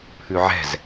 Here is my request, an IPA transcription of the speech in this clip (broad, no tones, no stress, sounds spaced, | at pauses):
pʰ ʉ ʕ ɛ̤ z